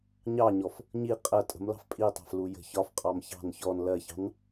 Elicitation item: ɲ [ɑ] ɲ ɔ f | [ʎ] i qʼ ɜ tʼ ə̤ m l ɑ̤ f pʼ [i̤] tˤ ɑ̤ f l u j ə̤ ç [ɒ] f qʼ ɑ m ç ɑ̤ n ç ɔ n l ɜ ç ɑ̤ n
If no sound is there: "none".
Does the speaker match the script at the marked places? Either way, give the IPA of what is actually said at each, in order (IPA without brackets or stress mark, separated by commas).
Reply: ɑ, ɲ, i, ɒ